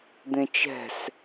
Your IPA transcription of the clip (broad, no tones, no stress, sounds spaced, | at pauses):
d̪ ẽ t͡ʃ ɛ̤ s